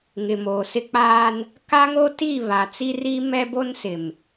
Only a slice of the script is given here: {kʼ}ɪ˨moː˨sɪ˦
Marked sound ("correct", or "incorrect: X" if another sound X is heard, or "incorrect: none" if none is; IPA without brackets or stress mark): incorrect: ŋ